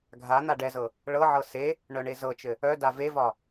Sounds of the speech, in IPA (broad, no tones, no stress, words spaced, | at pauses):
ɡʱan̪a ɖɛzɤ | ɭɤʕɤ se | ɳœɳezɤt͡ʃɘ | œda vevɒ